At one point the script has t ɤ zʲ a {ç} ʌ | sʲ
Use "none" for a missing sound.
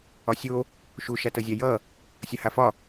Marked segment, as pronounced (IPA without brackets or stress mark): j